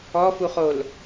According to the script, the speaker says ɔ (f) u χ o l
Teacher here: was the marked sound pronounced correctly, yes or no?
yes